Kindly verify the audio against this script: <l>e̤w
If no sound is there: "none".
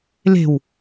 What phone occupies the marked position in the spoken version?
l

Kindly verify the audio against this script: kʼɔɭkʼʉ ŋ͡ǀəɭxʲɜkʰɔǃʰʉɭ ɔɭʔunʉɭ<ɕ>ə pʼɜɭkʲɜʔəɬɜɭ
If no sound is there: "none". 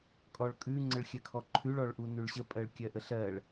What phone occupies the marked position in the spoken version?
ɕ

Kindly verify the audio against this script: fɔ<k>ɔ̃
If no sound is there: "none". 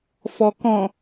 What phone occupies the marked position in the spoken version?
k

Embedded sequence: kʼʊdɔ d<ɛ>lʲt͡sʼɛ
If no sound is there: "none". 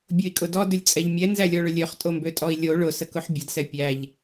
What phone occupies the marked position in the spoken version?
ʏ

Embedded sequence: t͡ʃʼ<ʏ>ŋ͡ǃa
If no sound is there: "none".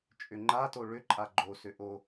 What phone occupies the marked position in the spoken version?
ʏ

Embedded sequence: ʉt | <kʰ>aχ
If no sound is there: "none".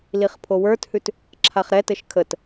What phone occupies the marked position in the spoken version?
ǁʰ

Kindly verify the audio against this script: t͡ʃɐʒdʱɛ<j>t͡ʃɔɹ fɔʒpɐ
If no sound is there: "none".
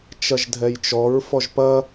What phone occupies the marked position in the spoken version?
j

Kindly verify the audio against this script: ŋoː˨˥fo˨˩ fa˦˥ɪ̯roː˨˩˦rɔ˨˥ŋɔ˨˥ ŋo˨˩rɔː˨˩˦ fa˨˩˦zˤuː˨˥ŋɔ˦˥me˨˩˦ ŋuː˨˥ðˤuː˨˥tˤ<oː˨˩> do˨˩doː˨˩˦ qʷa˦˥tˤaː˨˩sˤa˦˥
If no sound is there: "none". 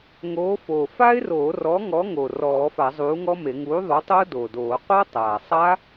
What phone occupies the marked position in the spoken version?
oː˦˥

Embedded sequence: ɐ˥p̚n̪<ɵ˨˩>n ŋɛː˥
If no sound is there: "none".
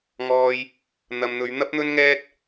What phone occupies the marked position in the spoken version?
ɵ˥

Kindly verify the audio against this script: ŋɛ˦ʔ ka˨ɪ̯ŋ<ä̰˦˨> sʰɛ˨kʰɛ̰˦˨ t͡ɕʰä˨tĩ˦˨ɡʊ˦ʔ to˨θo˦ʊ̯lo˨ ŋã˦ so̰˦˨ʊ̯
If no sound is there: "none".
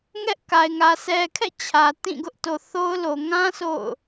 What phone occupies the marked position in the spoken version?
ä˨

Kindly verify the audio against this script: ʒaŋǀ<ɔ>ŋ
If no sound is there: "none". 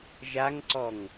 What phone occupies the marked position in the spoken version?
ɔ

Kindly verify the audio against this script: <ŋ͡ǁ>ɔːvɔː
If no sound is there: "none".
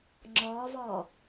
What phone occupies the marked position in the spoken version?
ŋ͡ǁ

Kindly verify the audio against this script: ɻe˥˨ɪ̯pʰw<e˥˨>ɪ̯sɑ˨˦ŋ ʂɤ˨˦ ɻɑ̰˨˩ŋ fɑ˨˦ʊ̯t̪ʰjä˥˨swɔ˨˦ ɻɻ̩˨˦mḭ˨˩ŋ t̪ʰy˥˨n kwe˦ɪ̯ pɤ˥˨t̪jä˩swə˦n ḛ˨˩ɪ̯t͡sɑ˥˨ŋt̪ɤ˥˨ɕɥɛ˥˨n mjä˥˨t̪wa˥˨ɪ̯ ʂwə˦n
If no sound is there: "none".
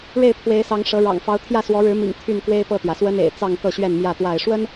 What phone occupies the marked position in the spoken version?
e˨˦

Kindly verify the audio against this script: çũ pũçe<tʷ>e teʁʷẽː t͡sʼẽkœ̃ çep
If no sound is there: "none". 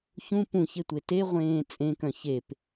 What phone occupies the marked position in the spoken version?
tʷ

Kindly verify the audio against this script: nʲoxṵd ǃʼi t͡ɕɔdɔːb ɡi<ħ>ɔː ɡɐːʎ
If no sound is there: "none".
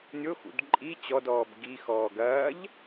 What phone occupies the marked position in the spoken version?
x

